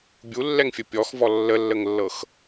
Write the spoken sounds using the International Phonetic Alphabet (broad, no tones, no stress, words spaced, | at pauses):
bʲulːɛŋfʲə pʲɔxvɔ lːəlːəŋlːɤx